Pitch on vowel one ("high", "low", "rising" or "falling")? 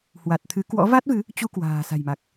low